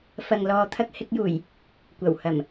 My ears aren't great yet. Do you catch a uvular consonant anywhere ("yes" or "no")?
no